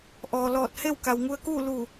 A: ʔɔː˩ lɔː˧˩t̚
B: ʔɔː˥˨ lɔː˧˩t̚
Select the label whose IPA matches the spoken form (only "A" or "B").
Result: A